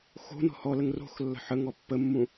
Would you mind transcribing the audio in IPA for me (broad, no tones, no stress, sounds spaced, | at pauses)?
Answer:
x o̤ n ɔ̤ h ɔ l ə ŋ r o̤ x lː ə̤ ħ ə ŋ ɔ pː ə mː ũ